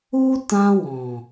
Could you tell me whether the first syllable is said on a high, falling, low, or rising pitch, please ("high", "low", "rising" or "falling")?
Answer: high